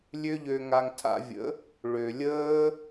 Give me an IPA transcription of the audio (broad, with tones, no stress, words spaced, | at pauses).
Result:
lʲø˦ʎø˧ŋa˧ŋ tʰa̰˧vʲə̰˨˦ | ɭø˨lʲəː˦